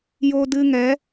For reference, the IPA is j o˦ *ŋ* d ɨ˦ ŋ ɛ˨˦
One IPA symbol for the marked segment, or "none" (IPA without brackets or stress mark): none